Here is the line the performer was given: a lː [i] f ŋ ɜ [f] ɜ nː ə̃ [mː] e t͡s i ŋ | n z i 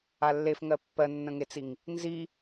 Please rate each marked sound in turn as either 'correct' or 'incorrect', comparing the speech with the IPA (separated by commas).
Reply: incorrect, incorrect, incorrect